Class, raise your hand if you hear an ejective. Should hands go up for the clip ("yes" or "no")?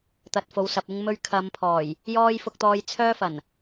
no